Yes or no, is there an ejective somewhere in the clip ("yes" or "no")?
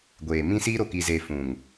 no